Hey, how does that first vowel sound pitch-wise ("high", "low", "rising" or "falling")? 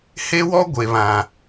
high